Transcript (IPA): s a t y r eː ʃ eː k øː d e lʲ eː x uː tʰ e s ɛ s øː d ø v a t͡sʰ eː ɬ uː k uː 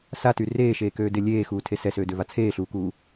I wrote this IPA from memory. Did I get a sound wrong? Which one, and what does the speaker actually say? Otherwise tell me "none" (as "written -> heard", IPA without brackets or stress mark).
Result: none